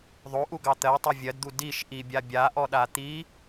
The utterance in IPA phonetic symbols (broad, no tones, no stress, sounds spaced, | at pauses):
ðˤ o ʔ u ɡ ɑ t̪ ɜ tˤ o vʲ ɜ d d̪ u d i ʃ ʔ i bʲ a bʲ a ʔ ɔ ɗ a t̪ i